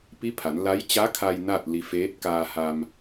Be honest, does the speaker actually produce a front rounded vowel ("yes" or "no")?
no